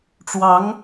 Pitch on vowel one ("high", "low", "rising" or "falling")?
rising